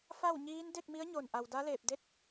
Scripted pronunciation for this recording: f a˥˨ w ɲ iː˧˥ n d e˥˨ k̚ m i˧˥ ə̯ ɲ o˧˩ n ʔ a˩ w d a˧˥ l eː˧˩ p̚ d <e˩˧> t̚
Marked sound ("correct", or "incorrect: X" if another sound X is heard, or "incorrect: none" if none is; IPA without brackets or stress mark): incorrect: e˧˥